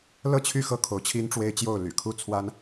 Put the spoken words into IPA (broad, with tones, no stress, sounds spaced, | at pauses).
l ɤ˥˨ t͡ɕʰ y˥˨ x ɤ˥˨ kʰ o˨˦ ʊ̯ t͡ɕʰ i˦ n ʈ͡ʂ w e˦ ɪ̯ t͡ɕ j o˥˨ ʊ̯ l y̰˨˩ kʰ u˥˨ t͡sʰ w a˦ n